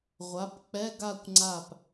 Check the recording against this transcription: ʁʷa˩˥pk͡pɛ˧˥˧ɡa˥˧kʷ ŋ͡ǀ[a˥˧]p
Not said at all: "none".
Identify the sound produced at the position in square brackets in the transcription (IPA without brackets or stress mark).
a˧˩